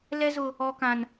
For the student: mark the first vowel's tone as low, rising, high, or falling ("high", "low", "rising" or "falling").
high